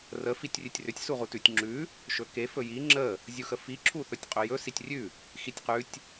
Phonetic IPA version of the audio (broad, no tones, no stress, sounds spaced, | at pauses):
r ə f i tʲ rʲ ʉ tʲ r ʏ tʲ s u ʁ u t ʉ tʲ ŋ͡ǁ ʉ | ʃ ɵ k e f ɵ j i ŋ͡ǁ ə | zʲ u x ə f i ǁʰ u θ ɵ tʲ qʼ ɵ j ɵ s i tʲ rʲ ʉ | x i tʲ q ʉ tʲ